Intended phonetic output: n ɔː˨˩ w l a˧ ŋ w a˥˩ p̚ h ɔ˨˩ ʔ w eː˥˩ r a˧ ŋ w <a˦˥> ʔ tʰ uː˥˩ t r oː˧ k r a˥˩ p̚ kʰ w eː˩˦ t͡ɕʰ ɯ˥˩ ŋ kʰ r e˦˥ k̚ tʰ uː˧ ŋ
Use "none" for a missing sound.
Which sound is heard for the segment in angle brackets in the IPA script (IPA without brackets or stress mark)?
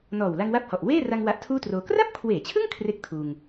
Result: a˦˥